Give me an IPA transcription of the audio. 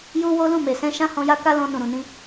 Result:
j u˦ w o˦ l ũ˦˨ m e˨ s ɛ̃˧ ʃ ã˦ h ɔ̃˧ j a˦ k a˦ l ɔ̃˧ n ũ˨ ɾ ũ˨ n ĩ˧

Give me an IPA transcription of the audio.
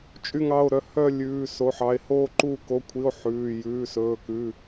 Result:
t͡ʃʼ y˥˧ ŋ ɑ˧˥˧ o̯ ɾ œ˥˧ h œ˥˧ lʲ ʉː˧˥˧ s o˧˥˧ ħ ɑ˧˥˧ e̯ h oː˥˧ ǃ uː˥˧ k o˧˥˧ kʷʰ i˧˥˧ o̯ ħ ʉː˧˥˧ j ʉː˧˥˧ s ɵː˧˥˧ k ʉ˧˥˧

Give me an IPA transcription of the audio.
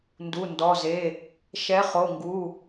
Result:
n d u˩˧˩ n d ɔ˩˧˩ z e˩˧˩ | ʃ ɛ˨˥ χ o˩˧˩ ŋ ɡ u˩˧˩

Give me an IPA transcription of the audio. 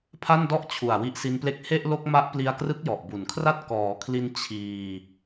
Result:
pʰ a˥˩ n d ɔ˥˩ ʔ t͡ɕʰ u˨˩ a̯ w i˦˥ ʔ s i˦˥ n p l e˥˩ k̚ h e˥˩ ʔ l o˥˩ k̚ m a˦˥ ʔ p l i˧ a̯ k r ɯ˦˥ k̚ j ɔ˨˩ ʔ b u˩˦ n kʰ r a˥˩ t̚ k ɔː˩˦ kʰ l i˧ n t͡ɕʰ iː˧

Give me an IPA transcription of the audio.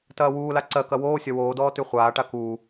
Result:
t ɐː w uː l a ǀ ɜ k ɐ w oː sʲ ɒ w oː d ɔː t y χʷ aː ʈ a k uː

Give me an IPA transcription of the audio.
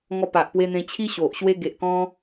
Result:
ŋ ɔ˧ p a˨ ʔ p w e˧ n̪ ẽ˧ t͡ɕʰ i˦ ɕ o˨ ʔ ɕ w e˧ ɡ e˨ ʔ k ɔ̃˧

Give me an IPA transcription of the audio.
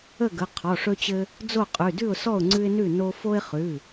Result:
ə˥˨ ɡ ə˩˧˩ qʰ ɔ˩˧˩ ʂ ɵ˦ t͡ɕ ɘ˦ | d͡z o˥˨ qʼ ʉ˩˧˩ d ʉ˥˨ ʊ̯ s ɔ˥˨ ʊ̯ ŋ͡ǀ ʉ˦ ɪ̯ n ʉ˥˨ n o˦ f o˦ ɪ̯ χ ʉ˩˧˩

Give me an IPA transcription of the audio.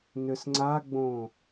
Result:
n ʏ s ŋ͡ǀ a ɡ͡b õ

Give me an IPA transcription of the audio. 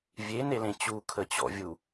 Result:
vʲ e n e l ẽ t͡ɕ u kʰ ə t͡ɕ ɔ̰ vʲ u

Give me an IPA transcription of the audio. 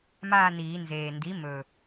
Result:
m aː˥˧ n iː˨˩˦ n z eː˨˩ n d i˩˥ m ɵ˨˩

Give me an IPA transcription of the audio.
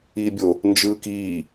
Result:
iː bʲ o | n d͡ʒ ɯː k iː

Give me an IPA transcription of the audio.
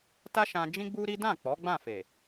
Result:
t a˦ ʃ ã˧ d͡ʒ ĩ˦ ɡ͡b u˦ ɾ i˦ d ã˦˨ k͡p ɔ˨˦ ɡ͡b ã˦˨ f e˨

